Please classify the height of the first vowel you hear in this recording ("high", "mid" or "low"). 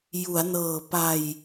high